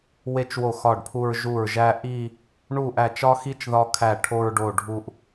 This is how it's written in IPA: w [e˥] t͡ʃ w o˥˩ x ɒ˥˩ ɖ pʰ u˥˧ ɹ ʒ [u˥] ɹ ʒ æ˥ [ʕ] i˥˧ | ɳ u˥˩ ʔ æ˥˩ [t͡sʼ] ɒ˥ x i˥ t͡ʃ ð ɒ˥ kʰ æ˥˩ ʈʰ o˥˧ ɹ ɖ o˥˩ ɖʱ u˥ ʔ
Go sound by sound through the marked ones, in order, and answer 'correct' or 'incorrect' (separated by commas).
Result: correct, incorrect, incorrect, incorrect